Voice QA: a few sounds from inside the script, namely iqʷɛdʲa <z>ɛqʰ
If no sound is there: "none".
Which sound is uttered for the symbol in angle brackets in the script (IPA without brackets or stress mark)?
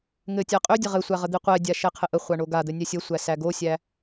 ʃ